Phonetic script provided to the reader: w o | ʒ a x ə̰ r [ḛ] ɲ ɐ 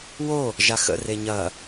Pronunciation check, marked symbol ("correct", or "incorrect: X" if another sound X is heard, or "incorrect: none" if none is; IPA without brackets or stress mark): incorrect: e